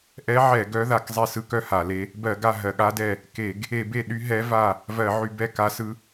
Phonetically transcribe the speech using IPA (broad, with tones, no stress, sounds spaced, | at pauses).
ʔ ɛ˧˥ ʕ ɛ˧˩˧ ɡ œ˧˥ ð a˧˩˧ k zˤ e˦˨ s ɯ˧˥ k œ˦˨ h a˧˩˧ l e˧˥ | b ɜ˧˩˧ ɡ a˦˨ ɦ ɜ˧˩˧ ɠ a˧˥ d ɛ˦˨ | k e˧˩˧ ɡ | e˧˩˧ b e˦˨ ɗ y˧˥ ɦ ɛ˧˥ v a˦˨ | v ɜ˧˩˧ ʕ y˧˩˧ b ɛ˦˨ k a˧˥ s ɯ˧˥